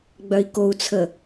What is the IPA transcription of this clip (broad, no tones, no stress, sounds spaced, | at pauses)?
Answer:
ɡ͡b œ i̯ k o u̯ t͡sʰ ə